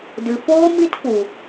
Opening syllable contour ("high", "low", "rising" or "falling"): low